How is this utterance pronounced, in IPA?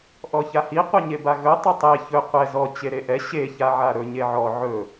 ʔɔçahi qʷeɲebaɣɵ tˤɵtˤe çɵ qʷɛ zɔ t͡ɕeɾeʔɛ ɕe çaʕaɾɵ ɲeʕɔ ʕɵ

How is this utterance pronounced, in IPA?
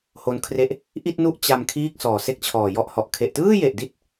ho˦˥nkʰre˥˩ʔ | ʔi˥˩t̚nu˥˩ʔ t͡ɕa˧m kʰiː˥˩k̚sɔː˨˩se˥˩k̚t͡ɕʰɔː˨˩ jɔ˦˥ʔhɔ˨˩ʔ kʰe˨˩ʔtɯː˥˩je˨˩ʔdi˦˥t̚

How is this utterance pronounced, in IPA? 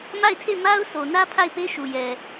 ma˦˨ɪ̯tʰe˦˨ ma˦ʊ̯sʰo˨nä˦ pʰa˦˨ɪ̯pe˦ʃu˨jɛ˨

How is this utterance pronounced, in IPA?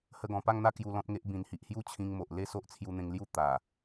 hə˧ɡɔ̃˨˩pa˥˧ŋn̪a˥˧ kju˧lɔ̃˦t̚ŋe˦ʔ bĩ˨˩nhi˨ʔhju˥˧ t͡ɕʰĩ˧ŋmo˨ʔ le˥˧so˦ʔ t͡sʰju˧n̪ẽ˧ŋlju˥˧ t̪a˨˩

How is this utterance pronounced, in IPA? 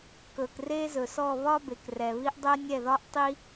kɵ˩kre˦zɵ˩sɔ˦˨ βɒ˦ be˩krɛ˩βi˦ʔ dˤɛ˦nʲɛ˦˨ðɒ˦ʔtˤi˦

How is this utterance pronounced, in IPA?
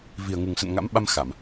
vi˨˩ə̯ŋu˨˩ŋsə̰˧˨n ŋa̰˧˥m ɓa˧m xa˧˩˨m

